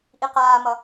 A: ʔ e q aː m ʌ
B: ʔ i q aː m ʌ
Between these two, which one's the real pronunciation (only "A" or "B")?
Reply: B